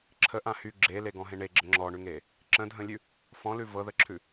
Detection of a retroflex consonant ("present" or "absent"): present